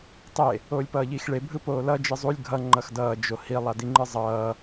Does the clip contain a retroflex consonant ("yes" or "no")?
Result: yes